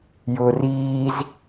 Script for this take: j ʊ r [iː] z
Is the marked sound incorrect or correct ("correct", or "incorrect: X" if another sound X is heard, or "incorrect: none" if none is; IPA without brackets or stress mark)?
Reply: correct